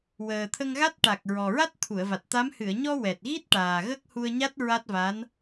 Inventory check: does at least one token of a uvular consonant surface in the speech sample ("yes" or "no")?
no